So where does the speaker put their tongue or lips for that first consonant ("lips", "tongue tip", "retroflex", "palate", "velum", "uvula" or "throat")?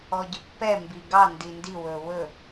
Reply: palate